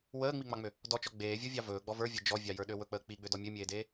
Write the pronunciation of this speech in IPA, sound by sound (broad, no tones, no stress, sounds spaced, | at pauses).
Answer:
w əː ŋ͡m i ŋ͡m ɑ ŋ͡m ø | d ɔ t͡ʃ ɔ ɡ͡b eː vʲ ɔ vʲ ɑ v ɵː ɡ͡b ɔ v ə˞ vʲ ə˞ d͡ʒ ɔ vʲ ɑ j ə˞ ɗ ø w ɵ k͡p əː k͡p i ɡ͡b ø d ɔ mʲ ø mʲ eː d eː